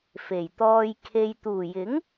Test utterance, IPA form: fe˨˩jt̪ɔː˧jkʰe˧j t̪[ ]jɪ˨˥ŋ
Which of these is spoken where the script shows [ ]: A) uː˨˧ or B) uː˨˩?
B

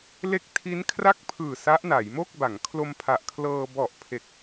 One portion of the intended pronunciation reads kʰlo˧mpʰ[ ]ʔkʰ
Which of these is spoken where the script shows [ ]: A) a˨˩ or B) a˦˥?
A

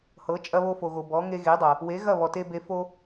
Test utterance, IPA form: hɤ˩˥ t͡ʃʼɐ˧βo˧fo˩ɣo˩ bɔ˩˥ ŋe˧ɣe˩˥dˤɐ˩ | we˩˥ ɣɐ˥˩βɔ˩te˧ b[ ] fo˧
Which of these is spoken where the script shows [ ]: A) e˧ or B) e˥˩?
A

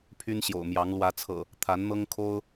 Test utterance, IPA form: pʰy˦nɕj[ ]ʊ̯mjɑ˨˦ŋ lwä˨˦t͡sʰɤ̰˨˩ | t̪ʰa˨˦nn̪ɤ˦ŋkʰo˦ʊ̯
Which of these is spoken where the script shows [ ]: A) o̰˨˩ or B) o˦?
A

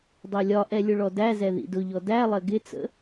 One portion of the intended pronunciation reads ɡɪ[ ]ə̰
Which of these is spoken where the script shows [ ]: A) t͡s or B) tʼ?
A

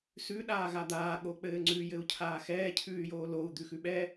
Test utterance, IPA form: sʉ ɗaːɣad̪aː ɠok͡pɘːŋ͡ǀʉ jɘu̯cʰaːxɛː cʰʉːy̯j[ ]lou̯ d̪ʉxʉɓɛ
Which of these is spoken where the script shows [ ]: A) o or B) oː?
B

